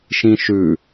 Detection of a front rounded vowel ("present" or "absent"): absent